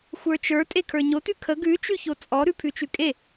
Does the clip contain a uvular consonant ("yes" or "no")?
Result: no